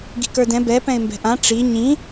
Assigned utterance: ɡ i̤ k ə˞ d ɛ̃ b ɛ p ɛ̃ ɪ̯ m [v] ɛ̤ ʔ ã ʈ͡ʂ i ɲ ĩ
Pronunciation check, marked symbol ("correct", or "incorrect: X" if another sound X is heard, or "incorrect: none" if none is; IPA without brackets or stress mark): incorrect: b